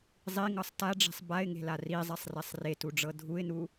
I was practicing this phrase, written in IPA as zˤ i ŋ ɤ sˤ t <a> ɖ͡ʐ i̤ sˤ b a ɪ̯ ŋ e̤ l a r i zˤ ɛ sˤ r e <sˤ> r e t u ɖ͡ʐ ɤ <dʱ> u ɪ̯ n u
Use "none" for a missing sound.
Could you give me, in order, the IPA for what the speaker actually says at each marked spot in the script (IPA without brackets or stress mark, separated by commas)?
a, sˤ, dʱ